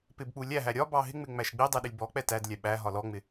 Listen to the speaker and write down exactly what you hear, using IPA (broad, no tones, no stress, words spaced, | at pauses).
pɪbk͡pu lʲæɦæ ɾʲɒbɑ ɦɪŋ͡mɪ ŋ͡mæʃɡ͡bidˤɛ ɗɪlʲbɔk͡pɛ tædlʲæ ɓæ ɦɒlɔŋ͡mɪ